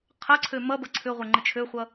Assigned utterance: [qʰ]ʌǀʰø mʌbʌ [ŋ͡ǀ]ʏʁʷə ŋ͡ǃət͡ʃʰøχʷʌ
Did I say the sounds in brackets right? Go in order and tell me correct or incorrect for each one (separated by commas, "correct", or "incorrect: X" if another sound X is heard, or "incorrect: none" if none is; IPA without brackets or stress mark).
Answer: correct, incorrect: ǀʰ